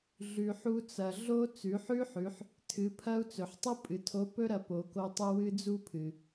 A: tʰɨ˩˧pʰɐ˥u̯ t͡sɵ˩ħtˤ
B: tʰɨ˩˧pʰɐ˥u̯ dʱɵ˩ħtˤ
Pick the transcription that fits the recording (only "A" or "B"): A